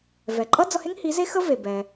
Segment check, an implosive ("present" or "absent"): absent